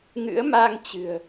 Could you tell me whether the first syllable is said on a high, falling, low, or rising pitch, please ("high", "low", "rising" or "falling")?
rising